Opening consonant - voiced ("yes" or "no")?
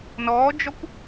yes